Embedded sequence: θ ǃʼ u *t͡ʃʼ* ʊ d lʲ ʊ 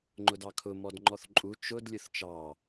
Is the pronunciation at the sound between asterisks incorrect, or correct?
incorrect